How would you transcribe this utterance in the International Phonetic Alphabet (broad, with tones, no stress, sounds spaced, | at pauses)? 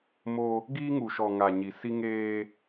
m o˦ | ɡ iː˦ ŋ u˨ ʃ ɔ˨ ŋ a˨ ɲ i˨ s i˦ ŋ eː˦